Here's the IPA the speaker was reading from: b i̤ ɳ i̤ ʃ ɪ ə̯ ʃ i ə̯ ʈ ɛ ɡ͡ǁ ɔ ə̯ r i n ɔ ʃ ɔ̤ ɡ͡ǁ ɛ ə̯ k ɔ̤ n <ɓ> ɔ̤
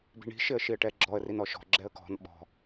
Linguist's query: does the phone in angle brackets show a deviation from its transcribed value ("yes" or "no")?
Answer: no